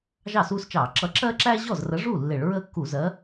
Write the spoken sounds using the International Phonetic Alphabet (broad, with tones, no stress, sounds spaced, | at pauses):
ʒ ɑ˥˩ s uː˦ s t͡ʃ ɑː˧˩˧ ǁ ʌ˨˥ ǁ ɜ˦ ǁ æː˦ ʑ ɔ˥˩ z r ə˨˥ ʐ u˥˩ lː ɪ˧˩˧ ɭ ɹ əː˦ kː u˧˩˧ z ɜ˨˥